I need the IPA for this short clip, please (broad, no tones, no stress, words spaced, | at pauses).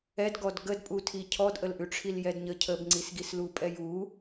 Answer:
ɛdɡɔd ɡədpʼutʰi cʰɔdʔəlʔʉʈ͡ʂʰil jɛdɲə cʰəbŋ͡ǀisɡis lupʼɛju